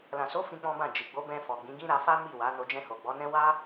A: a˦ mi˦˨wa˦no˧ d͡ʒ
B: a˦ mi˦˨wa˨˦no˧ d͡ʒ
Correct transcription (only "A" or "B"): B